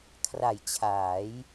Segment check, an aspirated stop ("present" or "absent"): present